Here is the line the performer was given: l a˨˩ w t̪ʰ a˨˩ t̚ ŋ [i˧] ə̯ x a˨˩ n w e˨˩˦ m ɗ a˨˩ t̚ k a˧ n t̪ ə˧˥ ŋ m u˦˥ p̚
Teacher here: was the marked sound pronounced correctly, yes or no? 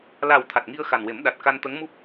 yes